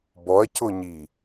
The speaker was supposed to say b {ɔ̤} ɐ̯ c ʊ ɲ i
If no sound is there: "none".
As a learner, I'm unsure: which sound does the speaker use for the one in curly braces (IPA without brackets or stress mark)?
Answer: ɔ